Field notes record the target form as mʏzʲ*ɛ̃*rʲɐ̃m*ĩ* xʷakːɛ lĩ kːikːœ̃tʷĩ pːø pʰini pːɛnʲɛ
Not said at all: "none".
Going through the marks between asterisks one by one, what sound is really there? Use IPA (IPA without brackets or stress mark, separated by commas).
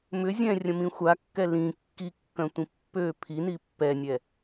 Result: ɛ̃, ĩ